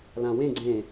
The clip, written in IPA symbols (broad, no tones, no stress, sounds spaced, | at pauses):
l ã w ẽ ɡ͡ǀ ẽ